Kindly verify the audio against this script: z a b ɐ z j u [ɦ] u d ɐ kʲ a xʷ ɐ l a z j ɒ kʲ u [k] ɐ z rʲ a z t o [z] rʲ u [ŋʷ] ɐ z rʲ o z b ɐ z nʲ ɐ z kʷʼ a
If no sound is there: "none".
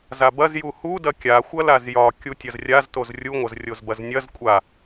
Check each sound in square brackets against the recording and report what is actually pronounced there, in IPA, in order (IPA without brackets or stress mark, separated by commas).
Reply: h, tʲ, z, ŋʷ